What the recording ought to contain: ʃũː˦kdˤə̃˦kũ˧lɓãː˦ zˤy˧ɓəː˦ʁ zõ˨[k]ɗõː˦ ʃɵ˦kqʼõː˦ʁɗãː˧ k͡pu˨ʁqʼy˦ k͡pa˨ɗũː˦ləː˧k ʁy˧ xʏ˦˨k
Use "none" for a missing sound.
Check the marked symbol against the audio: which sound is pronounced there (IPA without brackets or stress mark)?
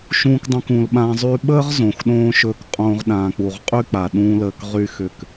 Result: x